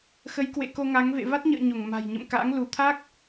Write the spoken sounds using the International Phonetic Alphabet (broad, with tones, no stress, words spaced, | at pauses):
xə˨˦jkwḛ˧˨ ko˧ŋa˨˦ŋ vḛ˧˨va˦˥t̚ɲə̰ː˧˨ ɲo˧˩ŋma̤˨˩jɲə̰˧˨m ka̰˧˥ŋ lu˧˩t̪ʰa˦˥k̚